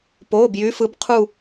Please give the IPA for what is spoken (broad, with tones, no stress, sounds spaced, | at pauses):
p oː˩˧˩ b j y˨˥ f ɯ˨˥ b qʰ u˦˨